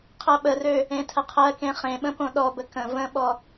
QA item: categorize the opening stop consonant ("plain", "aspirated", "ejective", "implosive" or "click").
aspirated